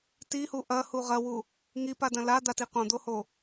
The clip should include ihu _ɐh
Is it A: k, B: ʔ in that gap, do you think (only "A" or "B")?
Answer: B